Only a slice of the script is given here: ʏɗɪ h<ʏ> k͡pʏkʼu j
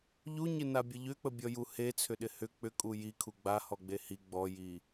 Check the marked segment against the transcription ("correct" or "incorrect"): correct